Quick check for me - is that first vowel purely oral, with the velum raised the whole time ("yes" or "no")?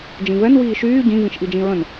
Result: no